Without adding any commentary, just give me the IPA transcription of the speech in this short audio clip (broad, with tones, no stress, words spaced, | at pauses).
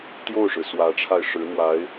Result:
t̪jo˥˩ʊ̯ʂɻ̩˩ swä˧˥ʈ͡ʂʰa˧ɪ̯ ʂɻ̩˧˥n̪wa˧˥ɪ̯